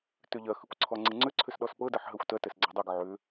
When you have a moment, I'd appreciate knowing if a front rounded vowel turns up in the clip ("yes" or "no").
yes